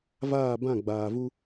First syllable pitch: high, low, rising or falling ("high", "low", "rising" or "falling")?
falling